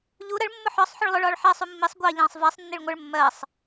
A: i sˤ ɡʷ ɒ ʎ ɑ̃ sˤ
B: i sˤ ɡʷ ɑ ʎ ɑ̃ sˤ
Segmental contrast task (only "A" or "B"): B